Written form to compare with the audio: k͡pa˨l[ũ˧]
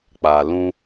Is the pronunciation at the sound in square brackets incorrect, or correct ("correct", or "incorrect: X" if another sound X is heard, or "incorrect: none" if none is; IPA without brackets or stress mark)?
correct